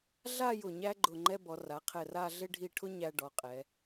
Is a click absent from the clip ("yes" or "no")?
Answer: no